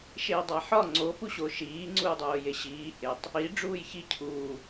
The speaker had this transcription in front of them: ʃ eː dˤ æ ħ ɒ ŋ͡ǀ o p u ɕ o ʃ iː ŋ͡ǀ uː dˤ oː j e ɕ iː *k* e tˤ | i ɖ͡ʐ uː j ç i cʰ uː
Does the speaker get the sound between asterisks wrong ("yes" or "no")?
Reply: yes